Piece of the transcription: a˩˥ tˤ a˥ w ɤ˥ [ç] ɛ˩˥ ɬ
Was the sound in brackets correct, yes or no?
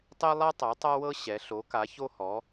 no